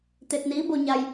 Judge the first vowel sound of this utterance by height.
mid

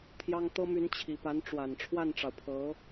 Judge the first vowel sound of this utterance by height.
low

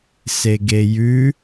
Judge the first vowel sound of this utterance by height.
mid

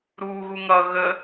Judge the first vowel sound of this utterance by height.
high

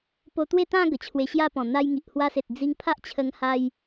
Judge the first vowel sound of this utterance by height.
mid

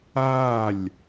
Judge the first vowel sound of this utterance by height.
low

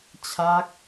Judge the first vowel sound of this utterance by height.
low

